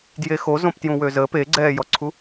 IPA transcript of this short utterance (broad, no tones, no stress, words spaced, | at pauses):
djexo zõptjũwøzə peɡ͡ǀɛːjɔǀʰu